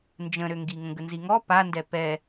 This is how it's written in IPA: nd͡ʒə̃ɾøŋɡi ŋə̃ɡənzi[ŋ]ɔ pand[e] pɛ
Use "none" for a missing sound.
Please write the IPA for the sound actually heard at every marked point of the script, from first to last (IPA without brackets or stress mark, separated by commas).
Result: ŋ, ɛ